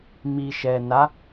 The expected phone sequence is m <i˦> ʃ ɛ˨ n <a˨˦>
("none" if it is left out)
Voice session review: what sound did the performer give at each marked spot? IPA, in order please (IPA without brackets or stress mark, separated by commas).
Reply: i˨, a˨˦